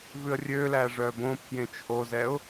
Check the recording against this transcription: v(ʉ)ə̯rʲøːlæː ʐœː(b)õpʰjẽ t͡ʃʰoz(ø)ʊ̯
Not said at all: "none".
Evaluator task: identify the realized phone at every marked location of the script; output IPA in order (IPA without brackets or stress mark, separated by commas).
ʉ, b, ɛ